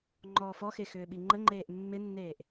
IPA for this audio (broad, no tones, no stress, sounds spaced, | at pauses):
ŋ͡ǃ ɔː f ɔ x e x ʏː ɓ i ŋ͡ǃ ə ŋ͡ǃ eː ʔ mː ɪ nː eː ʔ